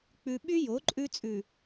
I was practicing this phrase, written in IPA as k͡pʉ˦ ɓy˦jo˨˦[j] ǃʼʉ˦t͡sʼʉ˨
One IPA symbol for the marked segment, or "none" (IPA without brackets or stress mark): none